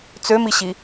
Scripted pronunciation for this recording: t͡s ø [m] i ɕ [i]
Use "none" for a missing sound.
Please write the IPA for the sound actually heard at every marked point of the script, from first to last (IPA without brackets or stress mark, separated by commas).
m, i